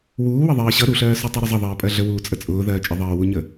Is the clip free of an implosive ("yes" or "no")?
yes